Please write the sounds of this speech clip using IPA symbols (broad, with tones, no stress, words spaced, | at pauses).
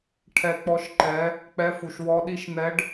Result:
ʈʰɛ˨˦k͡pɔ˨˦ʃ ǃɛ˨˦ | k͡pɛ˨˦fu˩ʃ wɔ˨˦ ɗi˨˦ʃn̪ɛ˨˦ɖ